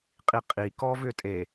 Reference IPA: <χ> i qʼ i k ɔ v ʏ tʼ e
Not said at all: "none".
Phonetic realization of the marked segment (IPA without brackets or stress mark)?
qʼ